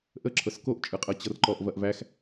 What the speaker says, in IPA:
ʔə ǁʰɤskoʔ t͡ʃʼɯqʼɤt͡ɕɤrǃɔʔ vɐʔvæx

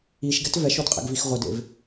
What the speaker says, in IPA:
iʃɡɛt vɛʃodqʼḛɡvix ʁʷɘdḛv

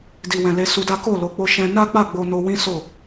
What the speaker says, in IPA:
di˨wɛ̃˨ le˧su˧da˦ ko˦˨lo˨˦k͡po˧ ʃɛ̃˧ na˦k͡pa˦˨ ɡ͡bo˧no˧wĩ˦ so˦˨

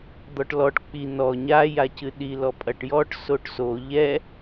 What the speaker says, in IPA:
d̪ɔʈlɔʈ k͡pi nɔ ɲa jacɨɗi lɔpʼɐʈjɔʈ soʈso ʎɛ

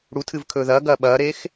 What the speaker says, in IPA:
ɽutʰɨvkʰɵː ðɐːɡɐː ɓɐːɾeːx

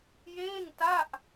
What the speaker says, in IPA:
jeː˥˩ŋta˥˩ʔ

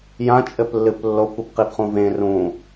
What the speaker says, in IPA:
jã t͡ʃʼɘplːɨplːokʷ ɨpqipχũvẽ rũ

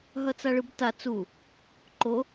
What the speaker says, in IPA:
ɦʌt͡saɭɯbta t͡su | ǃo

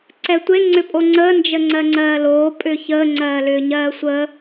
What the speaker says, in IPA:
ǀɛtʷe ŋ͡ǀʏpʼoŋ͡ǀəː nd͡ʒəŋ͡ǀɜŋ͡ǀɜːloː pʼʏːçəː ŋ͡ǀɜːlʏːɲɜːsʷəː

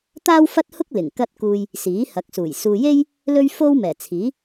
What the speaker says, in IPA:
t̪aː˥w fɐ˥t̚hʊ˥k̚ lɪ˨˩ŋkɐ˥t̚kuː˧j | siː˨˥hɐ˨˥k̚suː˨˩j suː˨je˥j | lɵ˥ɥfo˥wmɛː˨˩t͡sʰiː˨˥

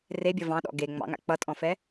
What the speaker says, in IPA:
rebʲʌ vɑ̃ɗɔ̰ ɡe ŋ͡mɑ̰ŋa̰ k͡pʌtʼɔ̃fɛ

